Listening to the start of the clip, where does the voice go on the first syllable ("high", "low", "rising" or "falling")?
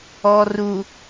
low